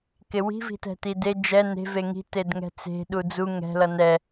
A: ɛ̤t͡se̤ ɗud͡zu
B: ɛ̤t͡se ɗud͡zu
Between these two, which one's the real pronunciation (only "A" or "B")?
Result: A